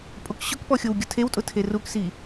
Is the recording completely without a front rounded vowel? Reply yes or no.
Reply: yes